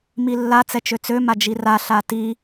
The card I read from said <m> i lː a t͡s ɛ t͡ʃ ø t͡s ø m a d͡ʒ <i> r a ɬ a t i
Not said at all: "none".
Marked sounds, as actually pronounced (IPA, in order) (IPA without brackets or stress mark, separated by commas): m, i